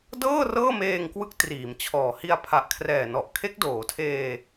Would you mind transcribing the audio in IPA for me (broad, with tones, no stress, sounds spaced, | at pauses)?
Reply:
d ɤː˥˩ r ɤː˥˩ m eː˧ ŋ k w ɯ˦˥ k̚ t r iː˩˦ m t͡ɕʰ ɔː˨˩ h i˧ a̯ pʰ a˨˩ ʔ kʰ r ɛː˨˩ n ɔ˨˩ ʔ kʰ e˦˥ k̚ d oː˩˦ tʰ eː˧